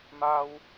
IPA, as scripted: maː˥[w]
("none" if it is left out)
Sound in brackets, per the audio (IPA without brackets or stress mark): w